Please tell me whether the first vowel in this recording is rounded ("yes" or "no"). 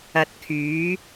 no